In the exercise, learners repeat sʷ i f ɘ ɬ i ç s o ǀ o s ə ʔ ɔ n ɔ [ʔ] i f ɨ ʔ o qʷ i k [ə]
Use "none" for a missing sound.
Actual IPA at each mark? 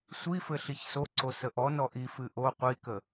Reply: ʔ, ə

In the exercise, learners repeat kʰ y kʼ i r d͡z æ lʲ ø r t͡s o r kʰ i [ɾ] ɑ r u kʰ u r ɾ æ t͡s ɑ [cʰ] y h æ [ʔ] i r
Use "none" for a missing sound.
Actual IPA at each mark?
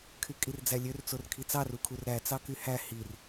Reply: t͡s, k, h

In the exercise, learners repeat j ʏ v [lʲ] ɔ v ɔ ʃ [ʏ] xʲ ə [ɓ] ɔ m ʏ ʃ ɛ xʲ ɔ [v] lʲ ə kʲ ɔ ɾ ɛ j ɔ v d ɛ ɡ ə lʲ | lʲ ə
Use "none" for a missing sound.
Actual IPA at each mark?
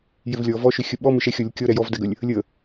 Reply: lʲ, ʏ, ɓ, none

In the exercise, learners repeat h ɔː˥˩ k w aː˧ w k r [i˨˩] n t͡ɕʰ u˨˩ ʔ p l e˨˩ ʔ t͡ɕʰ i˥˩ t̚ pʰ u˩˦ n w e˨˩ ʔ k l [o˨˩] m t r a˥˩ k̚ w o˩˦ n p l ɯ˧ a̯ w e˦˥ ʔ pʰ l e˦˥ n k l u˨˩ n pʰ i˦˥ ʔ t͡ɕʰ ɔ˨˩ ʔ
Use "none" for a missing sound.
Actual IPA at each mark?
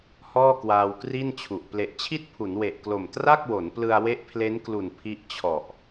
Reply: i˥˩, o˨˩

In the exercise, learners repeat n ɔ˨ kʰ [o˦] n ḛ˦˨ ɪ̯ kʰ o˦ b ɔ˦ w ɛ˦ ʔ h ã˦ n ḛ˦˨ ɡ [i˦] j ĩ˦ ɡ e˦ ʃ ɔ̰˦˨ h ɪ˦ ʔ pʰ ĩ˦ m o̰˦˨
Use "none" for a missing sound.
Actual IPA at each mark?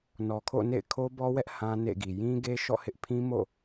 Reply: o̰˦˨, i˨

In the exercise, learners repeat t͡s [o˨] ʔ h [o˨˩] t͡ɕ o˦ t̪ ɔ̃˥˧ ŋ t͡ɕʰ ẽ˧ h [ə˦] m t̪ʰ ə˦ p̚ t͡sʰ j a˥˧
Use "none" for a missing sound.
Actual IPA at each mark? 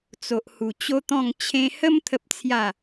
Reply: o˨, u˨˩, ə˦

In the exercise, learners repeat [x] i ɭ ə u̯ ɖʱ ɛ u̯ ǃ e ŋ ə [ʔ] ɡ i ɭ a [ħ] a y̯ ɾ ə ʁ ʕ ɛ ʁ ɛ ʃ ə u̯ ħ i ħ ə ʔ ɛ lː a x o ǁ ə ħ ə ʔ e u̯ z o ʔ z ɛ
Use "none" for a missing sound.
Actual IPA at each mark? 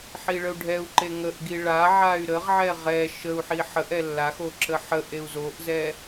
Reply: ħ, ʔ, ʕ

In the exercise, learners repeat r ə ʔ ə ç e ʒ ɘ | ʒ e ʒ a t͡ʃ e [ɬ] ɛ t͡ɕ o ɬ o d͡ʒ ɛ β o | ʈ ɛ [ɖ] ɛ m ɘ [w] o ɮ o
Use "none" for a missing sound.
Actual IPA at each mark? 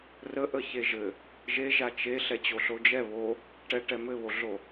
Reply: ɬ, ʈ, β

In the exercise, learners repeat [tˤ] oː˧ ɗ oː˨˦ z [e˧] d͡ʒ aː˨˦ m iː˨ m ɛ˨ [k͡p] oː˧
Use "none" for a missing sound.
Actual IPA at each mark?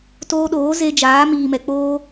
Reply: t, e˧, k͡p

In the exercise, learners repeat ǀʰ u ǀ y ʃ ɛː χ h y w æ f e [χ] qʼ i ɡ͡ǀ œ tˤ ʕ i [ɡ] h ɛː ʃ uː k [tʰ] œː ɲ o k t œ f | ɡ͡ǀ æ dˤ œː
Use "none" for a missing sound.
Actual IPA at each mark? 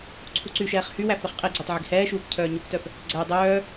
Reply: χ, ɡ, cʰ

